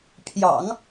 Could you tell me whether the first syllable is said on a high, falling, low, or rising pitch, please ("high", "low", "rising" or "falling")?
low